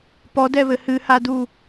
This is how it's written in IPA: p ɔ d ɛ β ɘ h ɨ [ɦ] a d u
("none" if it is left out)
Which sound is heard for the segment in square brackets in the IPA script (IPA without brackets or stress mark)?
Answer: h